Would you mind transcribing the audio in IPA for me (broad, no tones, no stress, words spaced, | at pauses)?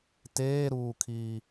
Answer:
teːɾuːkʰiː